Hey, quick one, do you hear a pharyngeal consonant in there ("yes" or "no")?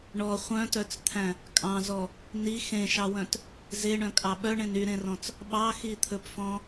no